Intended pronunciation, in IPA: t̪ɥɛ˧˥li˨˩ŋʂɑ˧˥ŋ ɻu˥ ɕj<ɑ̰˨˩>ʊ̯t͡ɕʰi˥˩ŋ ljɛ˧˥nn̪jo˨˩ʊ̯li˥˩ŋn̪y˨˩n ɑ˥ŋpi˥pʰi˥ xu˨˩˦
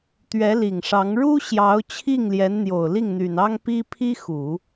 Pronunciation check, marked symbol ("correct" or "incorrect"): incorrect